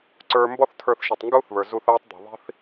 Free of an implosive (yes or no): yes